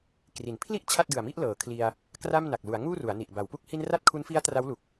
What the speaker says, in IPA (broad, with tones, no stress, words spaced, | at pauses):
kri˩˦npʰli˥˩ʔ t͡ɕʰa˥˩t̚dɯ˨˩a̯mi˥˩ʔ lɤː˩˦kʰli˧a̯ | kra˥˩m na˨˩k̚lu˩˦a̯ ŋuː˥˩ru˩˦a̯ni˨˩ʔ ba˩˦wpu˦˥k̚ hi˧n ra˥˩t̚kʰu˦˥nfi˦˥a̯ tra˦˥wlu˨˩k̚